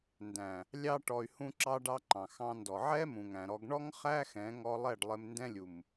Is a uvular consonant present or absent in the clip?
present